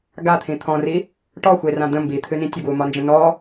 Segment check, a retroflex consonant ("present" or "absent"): present